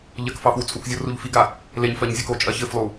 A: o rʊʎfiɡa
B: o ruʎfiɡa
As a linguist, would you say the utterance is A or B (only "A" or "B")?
B